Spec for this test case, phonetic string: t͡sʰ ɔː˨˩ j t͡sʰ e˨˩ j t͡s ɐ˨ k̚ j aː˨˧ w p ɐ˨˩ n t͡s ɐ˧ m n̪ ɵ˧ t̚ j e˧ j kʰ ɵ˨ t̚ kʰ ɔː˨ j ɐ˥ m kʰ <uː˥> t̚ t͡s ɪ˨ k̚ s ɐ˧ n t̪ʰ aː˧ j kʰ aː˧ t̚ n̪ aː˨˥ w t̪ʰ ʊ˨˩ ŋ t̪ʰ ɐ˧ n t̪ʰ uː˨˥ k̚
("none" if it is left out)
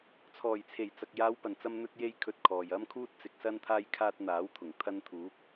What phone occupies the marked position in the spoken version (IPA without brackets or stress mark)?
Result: uː˥